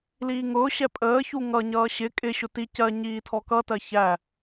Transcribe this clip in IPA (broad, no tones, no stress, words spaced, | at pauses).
liːŋʊːɕɛ pʼəːçu ŋʌɲʌː ɕɪ kʼɪɕʊ ti cɜ ɲiːtʰɔkʌtɜ çæ